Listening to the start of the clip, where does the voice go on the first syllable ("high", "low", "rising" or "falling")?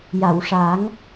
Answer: low